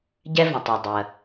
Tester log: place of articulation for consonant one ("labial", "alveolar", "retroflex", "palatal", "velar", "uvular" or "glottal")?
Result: palatal